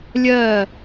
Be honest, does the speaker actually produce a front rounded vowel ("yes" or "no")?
no